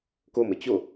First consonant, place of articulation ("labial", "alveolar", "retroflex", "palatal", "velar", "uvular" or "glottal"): velar